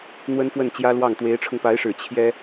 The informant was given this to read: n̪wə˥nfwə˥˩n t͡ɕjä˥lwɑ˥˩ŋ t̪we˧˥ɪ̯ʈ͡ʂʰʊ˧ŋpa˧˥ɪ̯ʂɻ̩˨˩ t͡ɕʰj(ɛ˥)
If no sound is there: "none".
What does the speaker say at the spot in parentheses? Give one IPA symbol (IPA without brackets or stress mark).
ɛ˥